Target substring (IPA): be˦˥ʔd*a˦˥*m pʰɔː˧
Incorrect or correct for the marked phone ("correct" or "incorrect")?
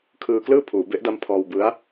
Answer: correct